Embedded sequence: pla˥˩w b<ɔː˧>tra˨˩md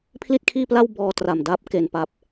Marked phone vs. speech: correct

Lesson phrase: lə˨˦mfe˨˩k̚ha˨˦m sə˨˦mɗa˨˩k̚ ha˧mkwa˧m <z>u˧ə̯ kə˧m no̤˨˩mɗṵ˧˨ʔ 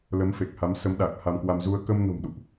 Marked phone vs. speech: correct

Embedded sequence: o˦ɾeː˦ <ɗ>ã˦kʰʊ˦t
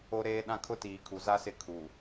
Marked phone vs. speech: correct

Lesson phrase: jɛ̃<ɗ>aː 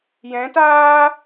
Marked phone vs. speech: incorrect: t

